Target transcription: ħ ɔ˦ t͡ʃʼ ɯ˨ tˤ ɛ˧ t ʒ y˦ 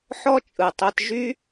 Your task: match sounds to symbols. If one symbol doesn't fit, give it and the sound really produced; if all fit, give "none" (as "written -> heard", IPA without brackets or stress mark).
none